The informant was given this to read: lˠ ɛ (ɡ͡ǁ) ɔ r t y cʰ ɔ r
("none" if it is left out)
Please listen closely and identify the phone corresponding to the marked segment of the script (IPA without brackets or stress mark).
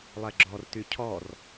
ɡ͡ǁ